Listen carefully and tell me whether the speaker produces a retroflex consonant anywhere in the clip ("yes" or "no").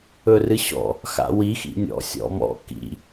no